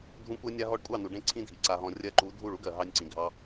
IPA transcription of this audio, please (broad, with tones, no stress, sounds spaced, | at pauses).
dʱ ũ˦ kʷ ɜ˦ nʲ a˦ ɦ ɔ˧ ɖ kʷʼ ɑ˦˨ n u˨ ɖ ẽ˦˨ ǀʰ ĩ˦ dʱ i˨ ǀ a˧ ɦ ɔ̃˧ rʲ ɜ˧ ǃ u˨˦ dʱ u˦˨ ɭ u˦ ɡ ɜ˨ ɦ ɑ˧ nʲ ǀ ĩ˨ ɡʱ ɑ˧